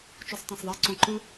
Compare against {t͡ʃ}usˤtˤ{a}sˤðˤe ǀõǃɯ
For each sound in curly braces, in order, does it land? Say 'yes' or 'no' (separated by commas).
yes, no